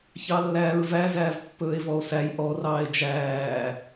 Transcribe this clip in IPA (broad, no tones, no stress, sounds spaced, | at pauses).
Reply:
ç ɑ lː æː ɹ v æ z æː v pː ɵː e̯ v ɔ o̯ s æ j ʔ ɔ r ɑː e̯ d͡ʒ æː